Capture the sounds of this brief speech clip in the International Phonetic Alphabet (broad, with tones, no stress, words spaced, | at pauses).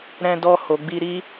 ɾɛ̃˧dɔ˧ ho˨ɡ͡bi˧ ɾi˦